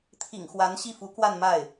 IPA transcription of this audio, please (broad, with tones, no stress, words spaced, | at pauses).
t̪ʰḭ˨˩ŋ xwa˧˥nɕi˥˩fu˧˥ kwa˥˧nma˥˩ɪ̯